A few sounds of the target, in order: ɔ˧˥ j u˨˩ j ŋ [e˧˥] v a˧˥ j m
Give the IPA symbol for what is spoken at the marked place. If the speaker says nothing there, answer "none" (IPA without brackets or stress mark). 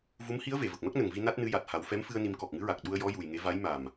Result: e˧˥